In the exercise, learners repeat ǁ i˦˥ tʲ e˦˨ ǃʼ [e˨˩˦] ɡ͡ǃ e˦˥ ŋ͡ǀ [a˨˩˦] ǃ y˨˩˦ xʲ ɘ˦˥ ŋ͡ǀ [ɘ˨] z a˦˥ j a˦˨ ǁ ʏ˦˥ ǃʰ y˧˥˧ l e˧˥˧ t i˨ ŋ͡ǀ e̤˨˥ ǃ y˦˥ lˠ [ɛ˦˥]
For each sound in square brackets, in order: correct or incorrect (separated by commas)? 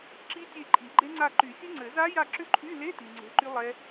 incorrect, incorrect, incorrect, correct